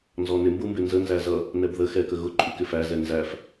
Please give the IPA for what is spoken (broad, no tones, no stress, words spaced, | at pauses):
nzɔnɪmbumbɪ nzənzæ zʌ | nɛbðə xɛkə ɣʊ ǃʼukɪfæ zɛnzæf